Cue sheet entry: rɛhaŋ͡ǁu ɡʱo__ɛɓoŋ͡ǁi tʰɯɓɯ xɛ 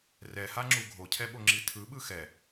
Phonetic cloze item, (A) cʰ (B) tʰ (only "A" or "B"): A